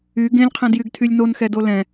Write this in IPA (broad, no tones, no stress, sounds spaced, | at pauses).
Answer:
y ɡ ẽ lʲ qʰ ɛ̃ d j y ɡ tʰ y lʲ n o n x ɛ d o l ɛ̃